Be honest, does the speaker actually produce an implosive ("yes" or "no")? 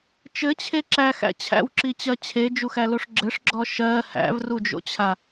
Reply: no